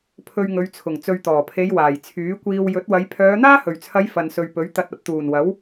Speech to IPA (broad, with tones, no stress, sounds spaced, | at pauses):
pʰ ɵ˧ ɥ ŋ ɵ˨˧ ɥ t͡sʰ ʊ˨˩ ŋ t͡s ɵ˨ ɥ t̪ ɔː˨˩ pʰ e˨˧ j w aː˨˩ j t͡sʰ yː˨˥ kʷ iː˧ w j ɵ˨˥ t̚ w ɐ˨˧ j pʰ œː˨˧ n̪ aː˥ h ɵ˨˩ ɥ t͡sʰ ɐ˨˧ j f ɐ˨ n s ɵ˨ ɥ p ɵ˨˥ ɥ t̪ ɐ˨ t̚ ɐ˨˥ p̚ t̪ uː˨˩ n w ɐ˨˥ w